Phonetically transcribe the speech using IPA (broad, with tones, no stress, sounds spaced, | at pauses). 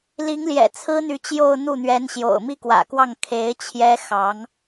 l i˧˥ ŋ l j ɛ̰˨˩ t͡sʰ ɹ̩˥ n̪ y˧˥ t͡ɕ j o˥˧ ʊ̯ n̪ u˥˩ n̪ ɥ ɛ˧˥ n ɕ j o̰˨˩ ʊ̯ m i˥˩ k w ä̰˨˩ k w ɑ˥˩ ŋ kʰ e˧˥ ɪ̯ t͡ɕʰ j ɛ˥ x ɑ˧˥ ŋ